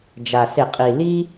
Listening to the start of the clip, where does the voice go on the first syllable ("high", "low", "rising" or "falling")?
low